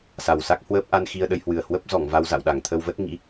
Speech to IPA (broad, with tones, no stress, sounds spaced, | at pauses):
s a˨˩ w s a˦˥ k̚ h w əː˦˥ p̚ ʔ a˧ n x i˧ ə̯ ɗ ə˧ j h w ɨ˨˩ ə̯ h w ə˦˥ p̚ z ɔ˧˩ ŋ v a˧ w z a̰˧˨ w ɗ a˧˩ ŋ t̪ʰ ə˧ w v ə˦˥ t̚ ŋ ḭ˧˥